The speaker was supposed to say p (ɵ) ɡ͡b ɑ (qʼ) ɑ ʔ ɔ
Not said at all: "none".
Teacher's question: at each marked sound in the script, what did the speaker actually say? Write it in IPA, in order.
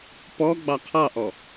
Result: ɔ, qʰ

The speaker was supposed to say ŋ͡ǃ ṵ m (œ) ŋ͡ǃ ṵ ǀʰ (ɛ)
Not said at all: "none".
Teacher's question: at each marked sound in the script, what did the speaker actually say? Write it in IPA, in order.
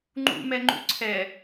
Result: ɛ, ɛ

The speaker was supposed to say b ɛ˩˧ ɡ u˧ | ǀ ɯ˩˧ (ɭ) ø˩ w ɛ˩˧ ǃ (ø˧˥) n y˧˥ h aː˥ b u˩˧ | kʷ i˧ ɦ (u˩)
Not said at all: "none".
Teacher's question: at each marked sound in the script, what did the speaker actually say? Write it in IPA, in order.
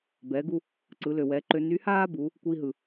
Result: l, ø˧, ɯ˩

